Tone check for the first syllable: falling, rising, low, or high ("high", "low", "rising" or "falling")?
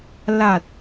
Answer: low